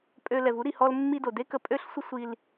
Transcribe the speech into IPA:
pʼ ø˧ l ɛ˨ v u˨˦ ɾ i˨ h ɔ˧ l mː i˧ d o˨ d e˦ k ə˧ pʼ ø˦ ɬ sʷ ə˦ sʷ i˧ l

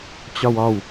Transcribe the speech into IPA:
t͡ɕ ɒ w ɒ w

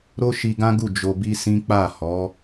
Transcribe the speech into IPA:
ɾ o˦ ʃ i˧ ɡ ã˦ ɡ u˦˨ d͡ʒ o˧ b i˦ s ĩ˦ k͡p a˦˨ h ɔ˨˦

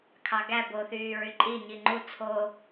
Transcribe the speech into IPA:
kʰ ɑ ɡ æ b o θ yː ɹ y ǃʼ i ɲ i ŋ͡ǃ u t͡sʰ o

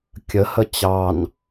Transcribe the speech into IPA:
kʲ ə h ə t͡ɕ ɑ n

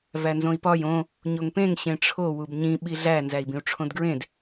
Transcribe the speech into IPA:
v æ n z õ i̯ p ɒ j õ | ɲ o ŋ p ẽ ŋ ɕ ẽ ʈ͡ʂʰ o w u b ɲ ĩ ɓ i ɮ æ n z æ i̯ b ĩ u̯ ʈ͡ʂʰ õ d ɡ ɹ ẽ d

